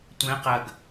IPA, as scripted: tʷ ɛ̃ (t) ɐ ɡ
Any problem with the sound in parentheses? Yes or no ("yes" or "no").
yes